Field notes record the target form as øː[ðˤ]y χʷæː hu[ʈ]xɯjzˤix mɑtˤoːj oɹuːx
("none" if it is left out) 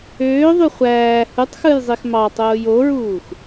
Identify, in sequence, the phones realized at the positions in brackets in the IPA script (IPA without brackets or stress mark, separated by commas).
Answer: ðˤ, tˤ